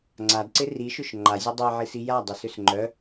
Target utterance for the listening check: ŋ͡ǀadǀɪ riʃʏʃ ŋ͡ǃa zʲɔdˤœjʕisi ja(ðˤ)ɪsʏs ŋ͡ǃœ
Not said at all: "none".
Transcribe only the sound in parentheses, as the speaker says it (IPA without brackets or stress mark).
dˤ